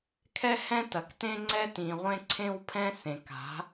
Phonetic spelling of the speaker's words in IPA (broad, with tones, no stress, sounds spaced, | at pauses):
kʰ ɛ˦ h ɛ̃˦ t ɐ˨ k t ẽ˦ ŋ͡ǀ ɛ˦ t ĩ˨ ʁʷ ẽ˦ ǀʰ ẽ˦ w pʰ ɛ̃˦ s ẽ˨ k a̤˨˦